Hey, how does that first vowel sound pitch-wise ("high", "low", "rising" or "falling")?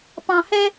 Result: low